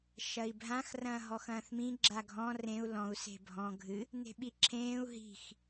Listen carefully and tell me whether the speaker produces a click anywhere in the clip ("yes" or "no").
yes